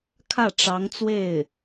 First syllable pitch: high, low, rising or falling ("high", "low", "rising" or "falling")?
falling